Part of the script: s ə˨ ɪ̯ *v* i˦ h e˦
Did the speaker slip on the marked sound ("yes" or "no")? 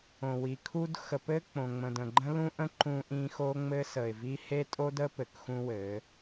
no